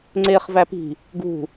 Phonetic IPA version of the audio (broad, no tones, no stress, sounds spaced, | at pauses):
ŋ͡ǀ e χ v æ p i̤ | ɡ ṳ